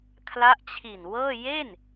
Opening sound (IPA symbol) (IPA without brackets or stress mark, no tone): kʰ